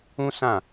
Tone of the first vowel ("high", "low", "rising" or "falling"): high